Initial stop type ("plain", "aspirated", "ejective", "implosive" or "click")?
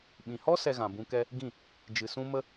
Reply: implosive